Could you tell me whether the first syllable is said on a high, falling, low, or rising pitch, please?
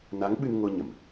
rising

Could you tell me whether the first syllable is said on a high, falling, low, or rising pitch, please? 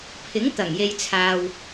rising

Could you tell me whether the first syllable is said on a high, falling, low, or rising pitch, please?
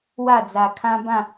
falling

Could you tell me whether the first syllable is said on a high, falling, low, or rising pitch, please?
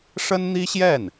high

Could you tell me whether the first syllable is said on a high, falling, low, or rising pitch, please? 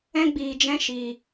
high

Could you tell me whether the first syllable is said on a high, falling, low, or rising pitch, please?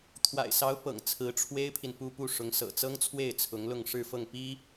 low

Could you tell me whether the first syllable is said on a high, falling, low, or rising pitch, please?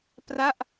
falling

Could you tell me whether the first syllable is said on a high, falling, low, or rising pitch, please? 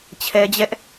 high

